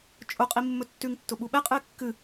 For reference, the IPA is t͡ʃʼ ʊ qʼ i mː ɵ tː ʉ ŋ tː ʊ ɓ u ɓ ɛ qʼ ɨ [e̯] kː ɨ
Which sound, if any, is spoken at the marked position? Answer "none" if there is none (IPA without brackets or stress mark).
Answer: e̯